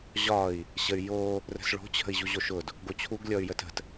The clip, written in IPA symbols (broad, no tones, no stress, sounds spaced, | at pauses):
ʑ ɒ i̯ | ɕ ə y̯ j o | r ə̤ s ɭ o̤ t͡ɕʰ ə̤ i̯ ʑ u ʑ o ʃ ʊ d | ɡ o t͡ɕʰ u ɡ lʲ ɔ y̯ j ə t ə̤ t